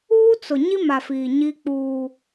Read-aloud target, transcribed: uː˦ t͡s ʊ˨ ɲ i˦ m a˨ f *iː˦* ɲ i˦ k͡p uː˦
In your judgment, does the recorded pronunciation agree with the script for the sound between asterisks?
no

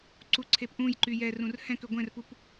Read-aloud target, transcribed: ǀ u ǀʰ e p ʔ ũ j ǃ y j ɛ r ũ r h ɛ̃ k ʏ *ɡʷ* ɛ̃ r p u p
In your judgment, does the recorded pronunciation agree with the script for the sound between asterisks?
yes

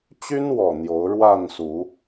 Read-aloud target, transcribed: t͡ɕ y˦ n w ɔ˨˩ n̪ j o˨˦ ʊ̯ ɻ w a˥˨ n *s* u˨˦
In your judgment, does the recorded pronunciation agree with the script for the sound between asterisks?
yes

